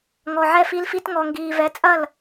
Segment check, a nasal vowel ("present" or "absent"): absent